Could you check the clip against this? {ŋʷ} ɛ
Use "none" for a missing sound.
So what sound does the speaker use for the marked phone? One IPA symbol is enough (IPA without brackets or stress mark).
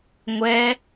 ŋʷ